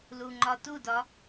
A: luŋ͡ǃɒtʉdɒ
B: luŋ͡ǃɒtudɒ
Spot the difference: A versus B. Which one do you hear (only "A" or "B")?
B